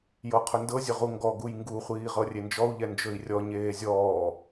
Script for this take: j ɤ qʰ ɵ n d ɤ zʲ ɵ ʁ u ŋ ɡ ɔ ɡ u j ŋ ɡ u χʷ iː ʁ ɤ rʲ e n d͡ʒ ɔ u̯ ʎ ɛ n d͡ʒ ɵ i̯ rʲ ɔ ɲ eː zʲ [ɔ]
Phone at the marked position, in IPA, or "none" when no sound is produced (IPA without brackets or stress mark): ɔː